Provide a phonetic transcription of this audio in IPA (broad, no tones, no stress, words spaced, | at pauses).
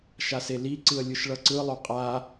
ʃaseliǀɯə̯ lʲɯʃɭʌǀɯlˠo qʼa